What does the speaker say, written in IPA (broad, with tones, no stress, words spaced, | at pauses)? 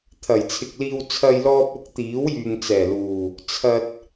t̪ʰɐ˨˩jt͡sʰɪ˨k̚liː˧w t͡sʰɐ˧j lɔː˧p̚ʊ˨˥k̚ t̪iː˨˥wjyː˨ŋt͡sɛː˨˩luː˨˩ | t͡sʰɐ˧t̚